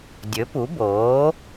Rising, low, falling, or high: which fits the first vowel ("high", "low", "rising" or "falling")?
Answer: rising